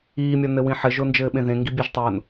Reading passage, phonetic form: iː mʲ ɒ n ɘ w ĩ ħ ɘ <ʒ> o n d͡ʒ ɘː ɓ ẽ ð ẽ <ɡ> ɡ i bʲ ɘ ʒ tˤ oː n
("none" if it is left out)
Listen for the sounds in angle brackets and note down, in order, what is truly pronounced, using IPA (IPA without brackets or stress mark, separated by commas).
ʒ, ŋ